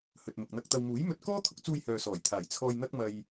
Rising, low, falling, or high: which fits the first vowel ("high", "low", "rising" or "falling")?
low